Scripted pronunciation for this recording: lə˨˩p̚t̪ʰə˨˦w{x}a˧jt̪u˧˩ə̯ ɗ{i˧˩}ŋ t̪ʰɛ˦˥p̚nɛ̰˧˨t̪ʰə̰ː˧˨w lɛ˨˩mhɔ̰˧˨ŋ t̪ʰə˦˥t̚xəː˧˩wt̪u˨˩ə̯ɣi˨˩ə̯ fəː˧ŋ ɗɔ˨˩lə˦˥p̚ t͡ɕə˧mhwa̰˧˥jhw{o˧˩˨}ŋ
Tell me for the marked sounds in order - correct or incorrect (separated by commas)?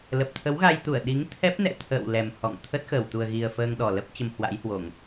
incorrect, incorrect, correct